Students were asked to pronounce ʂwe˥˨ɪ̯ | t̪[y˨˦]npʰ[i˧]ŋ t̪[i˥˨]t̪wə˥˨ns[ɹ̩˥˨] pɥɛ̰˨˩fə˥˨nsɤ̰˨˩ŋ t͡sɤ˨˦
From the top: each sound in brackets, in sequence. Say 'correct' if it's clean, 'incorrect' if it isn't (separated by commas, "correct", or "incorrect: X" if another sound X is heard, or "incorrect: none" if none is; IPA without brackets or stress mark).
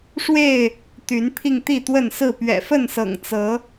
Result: correct, correct, correct, correct